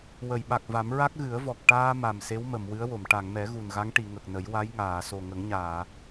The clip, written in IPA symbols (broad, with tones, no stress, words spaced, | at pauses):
wə˨˩˨jɓa˨˩k̚va˨˩˦m ɹa˦˥k̚ɣɨ˨˩˦ə̯vɔ˨˩k̚ ʈaː˧ ma˨˩m se˧˥wmə˨˩˨m wɨ˧˥ə̯wo˨˩˨m ʈa˨˩˨ŋmɛ˨˩˦ ɣu˨˩nɣa˧˥ŋ ʈi˨˩˨ ŋə˨˩k̚nə˨˩˦j wa˧˥jŋaː˨˩˨so˨˩ ŋə˨˩˦ŋɲaː˨˩˨